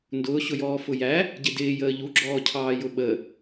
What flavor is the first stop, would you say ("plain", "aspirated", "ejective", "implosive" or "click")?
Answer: plain